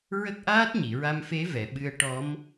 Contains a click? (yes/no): no